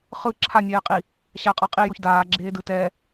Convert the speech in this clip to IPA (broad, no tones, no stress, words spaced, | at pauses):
χɯ ǁʰanʲɛːqʼi | ɕaqʼʌ qʼijoç daːɡ͡ǁeːdɯ tɛː